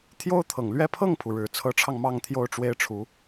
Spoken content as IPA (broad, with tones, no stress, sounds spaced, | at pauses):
t̪ʰ j o˥ ʊ̯ t̪ʰ ɤ˨˩ ŋ l ɥ ɛ˥˧ pʰ ɤ˥˩ ŋ pʰ u˩ ɻ ɻ̩˨˩ t͡sʰ ɤ˧˥ ʈ͡ʂʰ ɑ˧ ŋ m ɑ˥˧ ŋ t̪ʰ j o˥˩ ʊ̯ ʈ͡ʂ w e˥ ɪ̯ ʈ͡ʂʰ u˧˥